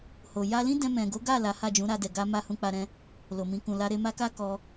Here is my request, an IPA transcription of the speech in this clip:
h o˨ j a˧ l ĩ˦ d ɛ̃˧ m ɛ̃˨ ɡ o˨˦ ɡ a˦˨ l a˨˦ h a˦˨ d͡ʒ ũ˨˦ ɾ a˧ d ɛ˨ ɡ a˧ m a˦ h ũ˧ k͡p a˧ ɾ ɛ̃˧ | l o˨ m ĩ˧ k ũ˨ l a˨˦ ɾ e˧ m a˦ k a˦ k ɔ˧

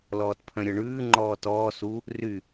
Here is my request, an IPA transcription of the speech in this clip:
l ɔː t pʰ œ̃ ɾʲ ɔ ɳ ʉː ŋ͡ǃ ɔː t ɔː s u | r y

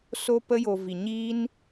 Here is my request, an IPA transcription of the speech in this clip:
s o˧ p ə˧ j o˨ v i˨ ɲ iː˦ n

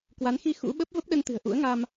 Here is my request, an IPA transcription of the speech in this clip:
k w a˨˦ n x i˧ x ṵ˧˥ ɓ ə˦˥ p̚ v ə˦˥ p̚ ɗ ə˧ n t̪ ɨ̤˨˩ ə̯ ʔ ṵ˧˥ ə̯ ŋ a˧ m

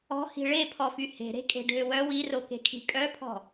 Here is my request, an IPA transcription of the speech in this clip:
ɔ̤ h i̤ ɭ e pʰ ɔ f y h e̤ ɾ e̤ kʼ e̤ ɖʱ ø w œ w i r o k e̤ kʰ i̤ kʼ œ pʰ ɔ̤

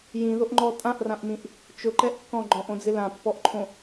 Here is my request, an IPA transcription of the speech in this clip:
j ĩ ð o ʔ ŋ͡ǃ ɔ tʼ ã ʔ r ã ʔ m ĩ ʔ | t͡ʃ ʊ ǃ ɛ ʔ kː ɔ̃ ɡ͡ǃ ɔ̃ ʔ õ d͡z ɪ l ã pː ɔ ʔ ǃʰ õ

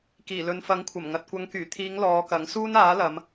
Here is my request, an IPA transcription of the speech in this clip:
k iː˨˩ l ɵ˨˧ n f ɐ˨˥ ŋ kʷʰ ɐ˨˩ m ŋ ɐ˨ t̚ kʷ ɐ˨˧ ŋ k yː˨˩ t̪ʰ iː˨˧ ŋ l ɔː˨˧ k ɐ˨˥ ŋ s uː˥ n aː˨˥ l ɐ˨˧ m

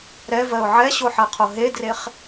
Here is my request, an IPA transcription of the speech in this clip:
ɾ ɛ v ɜ ʊ̯ ʕ ɛ ɕ o ħ ɜ qʰ o ɦ e d r e χ

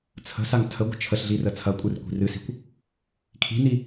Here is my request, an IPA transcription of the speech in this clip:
t͡sʰ ə̤ s a ŋ tʰ ə ɡʷ ə̤ t͡ʃʰ ə ɬ ɮ i r ə t͡sʰ ɐ kʷʼ ɨ r kʷ i̤ r ɨ s i̤ kʷ | kʰ i̤ n i

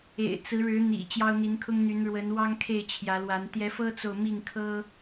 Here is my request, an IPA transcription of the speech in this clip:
ḛ˨˩ ɪ̯ t͡s ɹ̩˨˦ ɻ ɻ̩˨˦ n̪ ḭ˨˩ t͡ɕ j ɑ˦ ʊ̯ n̪ i˨˦ n kʰ ʊ˦ ŋ n̪ y˨˦ n ɻ w ə˨˦ n w ɑ˦ ŋ kʰ e˥˨ ɪ̯ t͡ɕʰ j ä˨˦ l w a˨˦ n t̪ j ɛ˨˦ f ɤ˦ t͡s o˨ ʊ̯ m i˥˨ ŋ kʰ ɤ˦

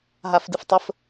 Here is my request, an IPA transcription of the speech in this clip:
ɦ a f d ɨ f tˤ ə f

